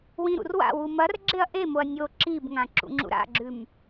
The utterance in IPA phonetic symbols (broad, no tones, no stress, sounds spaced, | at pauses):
w ĩ ɾ ṵ r w a̰ w u m ɐ r ɡ͡ǁ e ɐ̯ ʔ e m o ɐ̯ nʲ o ǁ i b ŋ ã ǁ ṵ ŋ͡ǁ ṵ ɾ a̰ ɡ͡ǁ ʉ m